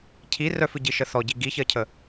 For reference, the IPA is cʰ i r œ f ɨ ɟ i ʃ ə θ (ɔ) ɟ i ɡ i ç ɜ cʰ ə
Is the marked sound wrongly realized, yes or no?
no